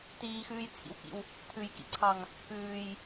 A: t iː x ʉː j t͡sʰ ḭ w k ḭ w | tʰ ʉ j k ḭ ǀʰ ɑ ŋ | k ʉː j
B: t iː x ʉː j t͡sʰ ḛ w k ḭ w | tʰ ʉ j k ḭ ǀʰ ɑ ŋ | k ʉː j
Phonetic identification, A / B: A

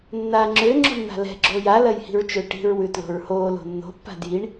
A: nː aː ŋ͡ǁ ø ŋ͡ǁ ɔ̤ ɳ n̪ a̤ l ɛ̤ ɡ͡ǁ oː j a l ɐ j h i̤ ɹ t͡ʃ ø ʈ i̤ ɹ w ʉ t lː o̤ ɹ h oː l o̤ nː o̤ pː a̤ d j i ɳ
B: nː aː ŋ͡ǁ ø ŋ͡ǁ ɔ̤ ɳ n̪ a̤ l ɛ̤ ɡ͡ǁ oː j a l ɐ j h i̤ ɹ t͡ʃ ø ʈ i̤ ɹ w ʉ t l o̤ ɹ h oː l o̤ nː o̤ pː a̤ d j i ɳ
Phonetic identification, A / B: B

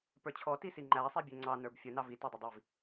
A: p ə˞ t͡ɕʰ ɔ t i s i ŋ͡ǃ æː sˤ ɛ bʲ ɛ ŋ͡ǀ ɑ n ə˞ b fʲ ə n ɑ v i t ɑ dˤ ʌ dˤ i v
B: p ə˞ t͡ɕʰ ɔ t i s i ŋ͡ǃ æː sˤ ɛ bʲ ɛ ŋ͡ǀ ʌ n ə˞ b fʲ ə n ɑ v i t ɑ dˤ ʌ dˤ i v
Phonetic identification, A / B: A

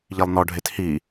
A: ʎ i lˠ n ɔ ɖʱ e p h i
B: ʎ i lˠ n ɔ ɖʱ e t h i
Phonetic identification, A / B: B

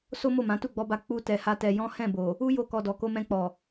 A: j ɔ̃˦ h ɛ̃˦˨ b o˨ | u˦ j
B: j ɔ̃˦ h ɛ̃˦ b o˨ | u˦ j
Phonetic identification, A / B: A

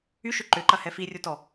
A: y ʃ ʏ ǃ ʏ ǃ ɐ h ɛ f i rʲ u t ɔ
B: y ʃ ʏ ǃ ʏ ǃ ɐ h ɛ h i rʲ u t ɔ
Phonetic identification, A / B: A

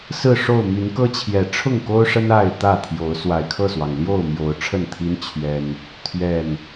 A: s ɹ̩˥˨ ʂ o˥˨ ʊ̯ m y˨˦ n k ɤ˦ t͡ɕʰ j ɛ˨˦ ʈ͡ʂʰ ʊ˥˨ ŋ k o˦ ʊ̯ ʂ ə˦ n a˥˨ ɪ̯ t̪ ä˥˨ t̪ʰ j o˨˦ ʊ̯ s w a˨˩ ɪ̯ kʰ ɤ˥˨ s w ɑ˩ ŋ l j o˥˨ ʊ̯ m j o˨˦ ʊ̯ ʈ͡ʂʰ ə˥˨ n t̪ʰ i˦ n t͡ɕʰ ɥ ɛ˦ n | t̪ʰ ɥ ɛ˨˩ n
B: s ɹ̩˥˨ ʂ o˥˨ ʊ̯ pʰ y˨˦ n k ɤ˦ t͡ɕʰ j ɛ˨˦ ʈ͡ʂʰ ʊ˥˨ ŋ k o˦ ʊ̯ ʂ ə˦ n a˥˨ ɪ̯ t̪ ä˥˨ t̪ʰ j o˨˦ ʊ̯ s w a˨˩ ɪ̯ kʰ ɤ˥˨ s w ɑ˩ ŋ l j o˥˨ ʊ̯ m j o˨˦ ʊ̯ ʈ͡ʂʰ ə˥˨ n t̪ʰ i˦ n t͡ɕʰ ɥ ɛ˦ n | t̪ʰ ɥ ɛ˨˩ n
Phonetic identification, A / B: A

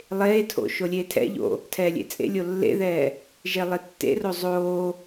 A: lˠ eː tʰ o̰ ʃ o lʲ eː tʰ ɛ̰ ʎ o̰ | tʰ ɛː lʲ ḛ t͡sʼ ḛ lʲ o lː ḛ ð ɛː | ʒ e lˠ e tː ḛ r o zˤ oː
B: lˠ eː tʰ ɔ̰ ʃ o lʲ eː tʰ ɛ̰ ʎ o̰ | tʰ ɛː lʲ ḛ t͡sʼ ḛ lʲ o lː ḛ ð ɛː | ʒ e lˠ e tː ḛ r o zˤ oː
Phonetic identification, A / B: A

